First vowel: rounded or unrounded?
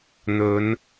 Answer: rounded